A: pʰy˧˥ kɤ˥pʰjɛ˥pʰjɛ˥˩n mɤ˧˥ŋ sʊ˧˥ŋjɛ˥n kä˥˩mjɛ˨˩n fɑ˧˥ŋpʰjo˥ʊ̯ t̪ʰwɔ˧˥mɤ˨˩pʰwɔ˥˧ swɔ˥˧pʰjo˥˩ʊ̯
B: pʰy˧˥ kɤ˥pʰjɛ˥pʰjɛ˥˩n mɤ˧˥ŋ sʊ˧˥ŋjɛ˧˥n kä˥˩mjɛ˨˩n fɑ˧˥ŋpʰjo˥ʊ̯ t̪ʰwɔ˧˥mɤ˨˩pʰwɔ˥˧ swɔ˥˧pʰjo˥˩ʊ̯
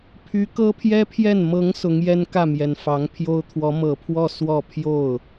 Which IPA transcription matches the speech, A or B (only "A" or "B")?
A